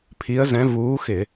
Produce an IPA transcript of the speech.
pʰ i˧˥ ə̯ z ɛ̃˧˥ v uː˧˥ x ɪ˧˩˧

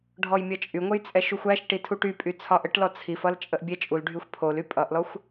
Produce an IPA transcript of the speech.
ɖʱ ɔ j mʲ ʌ t͡ʃʼ y ŋʷ ə j t͡sʼ ɛ ʃ u xʷ æ ʃ ʈ i tʰ u ʈ y pʼ y t͡sʰ ɒ ʔ ə ʈ l ɔ t͡sʰ i f ʌ l t͡ʃʼ ə ʔ bʲ ɛ t͡ʃʼ u l ɖʱ y xʷ pʰ o l y pʼ ʌ ʔ l ɔ xʷ

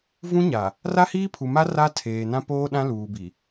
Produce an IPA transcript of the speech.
v ũ˦ ɲ a˨ | r a˦ h iː˦ pʰ u˨ m a˦ r a˦ tʰ eː˨ n ã˦ p oː˦ ɗ ã˦ l uː˨ b i˨

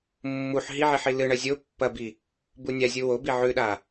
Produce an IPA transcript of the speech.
mː u ħ ɦ i ʕ i ħ i l ɨ ɳ ɐ zʲ o pː ɐ b i | b u nʲ a zʲ u w o b i ʕ ʉ ɗ a

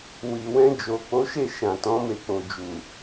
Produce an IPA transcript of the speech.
w i˨ w ɛ̃˧ d͡ʒ o˨ k͡p o˨˦ ʃ e˦˨ ʃ ã˨ t ɔ̃˨˦ m e˧ k͡p o˨ d͡ʒ u˨

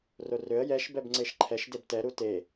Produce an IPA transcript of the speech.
r o r ø ə̯ j ɛ ʃ b ɛ b ŋ͡ǀ e ʃ ǃʰ ɛ ʃ d e b t ɛ ɾ u t e

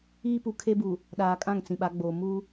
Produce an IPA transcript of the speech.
iː˦ p u˨ kʰ e˦ b u˨ | ɗ aː˨ kʼ ã˦˨ ŋ t͡s ĩ˨ ɓ a˨˦ ɡ͡b oː˨ m u˦

